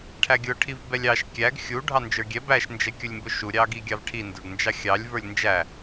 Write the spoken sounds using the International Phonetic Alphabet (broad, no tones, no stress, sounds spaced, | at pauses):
ʈʰ æ ɡʲ ʊ ʈʰ i v b ɛ lʲ ɑ ʃ kʲ æ ɡ xʲ u ɖʱ ɑ n d͡ʒ ə˞ ɡʲ ɛ b æ ʃ n d͡ʒ ɛ kʲ ʊ lʲ m b ʊ ʃ u ɾʲ ɑ ɡ i ɡʲ ɑ v ʈʰ i n d ə˞ ɡ n d͡ʒ ɑ xʲ ɑ lʲ v ə˞ lʲ n d͡ʒ æ